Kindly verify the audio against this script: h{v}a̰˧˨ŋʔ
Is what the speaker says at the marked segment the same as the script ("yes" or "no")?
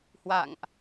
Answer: no